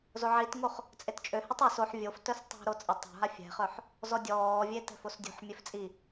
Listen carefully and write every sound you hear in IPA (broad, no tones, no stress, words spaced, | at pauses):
zoʕitŋoχ | t͡sʼett͡ʃʼøhɛtˤ ɛs oħ vʲoftœs tˤo̤ɾo t͡sʼə tˤo̤ɦa fʲɛ̤χœħ | zɔdʲɔːvʲe tɛ̤fosdʲo̤ħmʲef t͡sʼi